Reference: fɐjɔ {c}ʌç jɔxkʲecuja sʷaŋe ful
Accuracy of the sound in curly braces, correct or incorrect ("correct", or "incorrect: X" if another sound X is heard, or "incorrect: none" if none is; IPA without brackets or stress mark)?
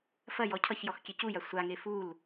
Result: incorrect: cʰ